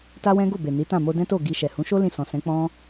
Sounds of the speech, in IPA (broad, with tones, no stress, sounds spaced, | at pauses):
t a˦ w ɛ̃˦ ɡ o˦˨ b e˨ n i˨˦ t ã˦˨ m o˧ d ɛ̃˦ t o˦˨ ɡ i˧ ʃ ɛ˨ h ũ˨˦ ʃ o˦ l ĩ˦˨ s ɔ̃˨ s ɛ̃˨˦ k͡p ɔ̃˦